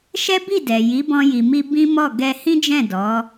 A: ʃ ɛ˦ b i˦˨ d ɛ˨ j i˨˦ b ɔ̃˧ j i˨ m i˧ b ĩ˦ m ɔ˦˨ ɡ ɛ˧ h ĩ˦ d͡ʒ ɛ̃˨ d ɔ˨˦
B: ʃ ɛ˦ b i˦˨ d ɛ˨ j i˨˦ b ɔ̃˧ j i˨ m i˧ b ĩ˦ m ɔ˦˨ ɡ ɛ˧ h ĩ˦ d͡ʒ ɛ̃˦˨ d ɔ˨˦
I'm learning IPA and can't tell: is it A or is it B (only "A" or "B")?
B